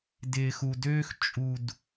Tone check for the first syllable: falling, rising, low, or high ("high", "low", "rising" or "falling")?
low